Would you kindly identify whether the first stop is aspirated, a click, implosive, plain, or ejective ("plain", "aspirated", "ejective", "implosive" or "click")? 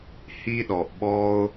implosive